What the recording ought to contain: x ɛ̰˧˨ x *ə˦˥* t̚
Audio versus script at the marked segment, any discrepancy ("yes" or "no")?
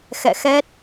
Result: yes